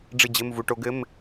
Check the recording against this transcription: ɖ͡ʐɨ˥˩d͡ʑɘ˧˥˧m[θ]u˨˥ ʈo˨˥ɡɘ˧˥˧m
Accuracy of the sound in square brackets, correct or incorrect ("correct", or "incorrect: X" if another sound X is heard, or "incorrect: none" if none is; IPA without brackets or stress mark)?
incorrect: v